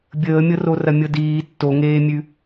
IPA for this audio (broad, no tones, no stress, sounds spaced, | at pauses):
bʲ əː mʲ ɤ r o r ɐ mʲ ɤ d iː tː o ŋ eː mʲ ʉ